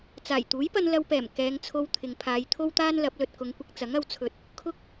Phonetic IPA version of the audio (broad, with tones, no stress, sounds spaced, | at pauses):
t͡s aː˨˩ j t̪ uː˨˥ j p ɐ˧ n l ɐ˧ w p ɛː˨˩ m k ɛː˨˧ ŋ t͡sʰ o˧ w t̪ʰ ɪ˨ ŋ pʰ aː˨˧ j t̪ʰ o˥ w t̪ aː˥ n l ɐ˨˥ p̚ l ɵ˨ t̚ k ʊ˨˧ ŋ kʷ ɪ˧ k̚ t͡s ɐ˨˥ ŋ ɐ˨˧ w t͡sʰ ɵ˨ t̚ | kʰ ʊ˧ k̚